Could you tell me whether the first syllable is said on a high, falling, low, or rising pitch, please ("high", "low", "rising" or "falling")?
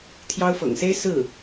high